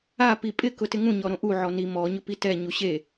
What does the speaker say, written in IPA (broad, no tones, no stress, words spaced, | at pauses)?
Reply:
a pipʼɪ kʊtɪŋũ ɲɔɾõʔu ʕɔni mɔ ɲʊpitɛ ɲuɕe